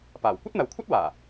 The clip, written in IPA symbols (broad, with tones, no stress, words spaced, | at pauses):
paː˨˩w kʷɐ˥t̚n̪ɐ˨wkʷʰɐ˥t̚waː˨˩